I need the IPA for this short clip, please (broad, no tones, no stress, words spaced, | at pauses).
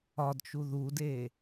ɒdt͡ʃu ðude